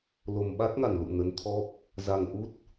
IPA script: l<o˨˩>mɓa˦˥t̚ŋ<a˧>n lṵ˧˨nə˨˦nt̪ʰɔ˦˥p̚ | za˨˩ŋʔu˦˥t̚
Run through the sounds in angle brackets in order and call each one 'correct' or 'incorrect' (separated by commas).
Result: correct, incorrect